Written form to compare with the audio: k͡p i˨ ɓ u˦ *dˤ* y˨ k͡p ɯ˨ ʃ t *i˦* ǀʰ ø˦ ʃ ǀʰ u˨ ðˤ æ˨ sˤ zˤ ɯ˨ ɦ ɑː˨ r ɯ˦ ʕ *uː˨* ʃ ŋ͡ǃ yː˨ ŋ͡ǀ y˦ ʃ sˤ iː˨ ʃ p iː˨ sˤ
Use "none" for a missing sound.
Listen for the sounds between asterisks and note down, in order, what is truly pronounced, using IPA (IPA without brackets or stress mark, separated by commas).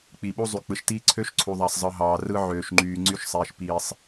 zˤ, iː˦, øː˨